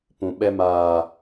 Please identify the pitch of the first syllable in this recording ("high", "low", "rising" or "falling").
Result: low